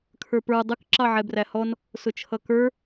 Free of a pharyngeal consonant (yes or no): no